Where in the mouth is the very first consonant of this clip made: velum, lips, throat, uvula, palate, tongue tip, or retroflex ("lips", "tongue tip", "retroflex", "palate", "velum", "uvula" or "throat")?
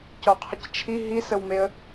palate